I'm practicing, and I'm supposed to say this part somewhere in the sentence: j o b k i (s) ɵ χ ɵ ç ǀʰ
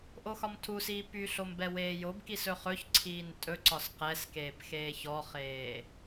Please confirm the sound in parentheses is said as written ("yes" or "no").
yes